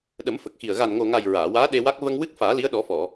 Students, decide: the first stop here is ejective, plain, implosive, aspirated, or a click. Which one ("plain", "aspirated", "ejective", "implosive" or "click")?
implosive